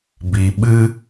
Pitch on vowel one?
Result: low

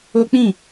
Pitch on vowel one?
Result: high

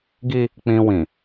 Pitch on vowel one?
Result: high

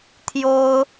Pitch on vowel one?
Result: high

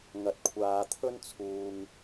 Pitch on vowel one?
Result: low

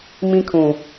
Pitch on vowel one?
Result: high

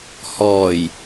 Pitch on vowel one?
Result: low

